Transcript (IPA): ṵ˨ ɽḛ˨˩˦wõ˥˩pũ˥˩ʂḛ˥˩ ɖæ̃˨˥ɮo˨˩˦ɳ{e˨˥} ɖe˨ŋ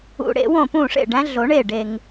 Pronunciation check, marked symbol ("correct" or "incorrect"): incorrect